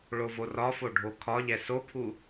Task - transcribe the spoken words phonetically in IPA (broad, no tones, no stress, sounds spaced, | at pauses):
ɭ o v o r ɒ f o ɖʱ o kʰ ɒ ʎ ɛ s o pʰ u